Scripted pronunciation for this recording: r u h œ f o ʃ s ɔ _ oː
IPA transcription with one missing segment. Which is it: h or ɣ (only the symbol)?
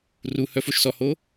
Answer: h